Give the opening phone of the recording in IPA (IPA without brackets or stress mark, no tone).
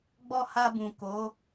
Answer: ɡ͡b